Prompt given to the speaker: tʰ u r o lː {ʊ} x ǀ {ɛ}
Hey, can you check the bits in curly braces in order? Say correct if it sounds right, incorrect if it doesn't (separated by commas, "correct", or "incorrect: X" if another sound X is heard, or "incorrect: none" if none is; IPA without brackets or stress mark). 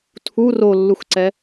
incorrect: u, correct